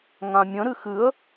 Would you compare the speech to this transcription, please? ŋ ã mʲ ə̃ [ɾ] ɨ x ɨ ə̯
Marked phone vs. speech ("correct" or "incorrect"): correct